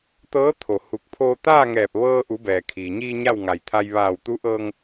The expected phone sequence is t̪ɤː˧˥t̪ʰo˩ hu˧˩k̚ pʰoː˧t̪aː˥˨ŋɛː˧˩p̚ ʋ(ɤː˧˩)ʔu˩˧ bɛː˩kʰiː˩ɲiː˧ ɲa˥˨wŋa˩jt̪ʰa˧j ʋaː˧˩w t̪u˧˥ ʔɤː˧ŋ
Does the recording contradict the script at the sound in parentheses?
yes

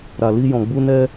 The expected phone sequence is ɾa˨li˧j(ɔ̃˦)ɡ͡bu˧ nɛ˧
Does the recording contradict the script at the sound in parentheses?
yes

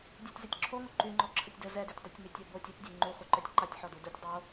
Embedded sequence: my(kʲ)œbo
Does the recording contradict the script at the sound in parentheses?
yes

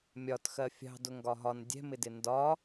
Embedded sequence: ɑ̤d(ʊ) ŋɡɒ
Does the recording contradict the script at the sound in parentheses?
no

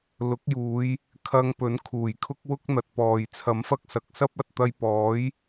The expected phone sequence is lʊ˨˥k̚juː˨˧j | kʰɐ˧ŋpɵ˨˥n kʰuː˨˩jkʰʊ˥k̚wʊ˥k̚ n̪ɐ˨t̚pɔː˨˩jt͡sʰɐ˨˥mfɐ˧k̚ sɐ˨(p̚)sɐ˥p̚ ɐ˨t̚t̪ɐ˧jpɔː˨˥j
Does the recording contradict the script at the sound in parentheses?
yes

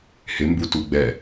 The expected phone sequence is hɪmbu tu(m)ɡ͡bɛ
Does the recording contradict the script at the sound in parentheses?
yes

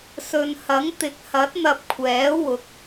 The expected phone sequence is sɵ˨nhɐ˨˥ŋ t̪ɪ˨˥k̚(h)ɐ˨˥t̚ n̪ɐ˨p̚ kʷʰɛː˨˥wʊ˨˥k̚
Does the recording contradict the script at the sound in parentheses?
no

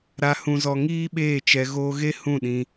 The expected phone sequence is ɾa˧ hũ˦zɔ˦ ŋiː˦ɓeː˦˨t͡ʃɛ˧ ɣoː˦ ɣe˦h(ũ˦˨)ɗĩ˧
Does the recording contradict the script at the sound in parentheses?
no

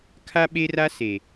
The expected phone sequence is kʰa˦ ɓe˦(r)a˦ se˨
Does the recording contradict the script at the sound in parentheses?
no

